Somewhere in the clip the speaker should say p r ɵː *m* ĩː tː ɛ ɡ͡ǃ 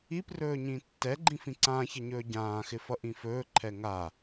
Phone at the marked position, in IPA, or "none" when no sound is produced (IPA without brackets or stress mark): ɲ